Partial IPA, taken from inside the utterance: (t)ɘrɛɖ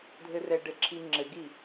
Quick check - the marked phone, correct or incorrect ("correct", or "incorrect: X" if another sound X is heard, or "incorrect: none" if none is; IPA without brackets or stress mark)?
incorrect: dʱ